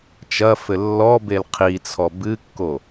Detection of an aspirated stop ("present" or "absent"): present